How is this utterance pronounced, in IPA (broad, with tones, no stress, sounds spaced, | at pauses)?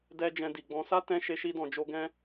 d ɛ˦ d͡ʒ ɛ̃˧ d i˨ ɡ͡b ɔ̃˧ s a˦ t ɛ̃˧ ʃ e˧ ʃ i˧ d ɔ̃˨ d͡ʒ o˧ ɡ ɛ̃˦